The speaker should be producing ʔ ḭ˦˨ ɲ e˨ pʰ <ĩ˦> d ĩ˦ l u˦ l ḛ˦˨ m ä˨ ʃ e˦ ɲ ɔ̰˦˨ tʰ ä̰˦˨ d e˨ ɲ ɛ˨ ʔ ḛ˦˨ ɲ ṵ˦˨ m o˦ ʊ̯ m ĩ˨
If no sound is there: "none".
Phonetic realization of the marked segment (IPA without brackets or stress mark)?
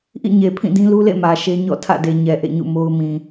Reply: ĩ˦˨